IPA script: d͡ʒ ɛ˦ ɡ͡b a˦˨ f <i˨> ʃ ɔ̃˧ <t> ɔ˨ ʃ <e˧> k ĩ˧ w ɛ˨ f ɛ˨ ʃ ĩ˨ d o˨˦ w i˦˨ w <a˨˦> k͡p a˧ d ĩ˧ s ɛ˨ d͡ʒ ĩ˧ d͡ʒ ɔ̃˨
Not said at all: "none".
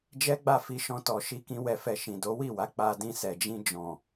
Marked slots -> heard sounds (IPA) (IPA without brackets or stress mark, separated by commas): i˧, t, i˧, a˨˦